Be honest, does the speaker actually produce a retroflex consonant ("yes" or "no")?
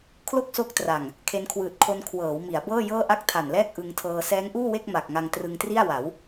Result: no